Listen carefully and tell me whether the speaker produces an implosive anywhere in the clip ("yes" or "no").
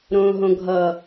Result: no